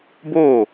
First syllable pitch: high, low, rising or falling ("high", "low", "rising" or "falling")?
falling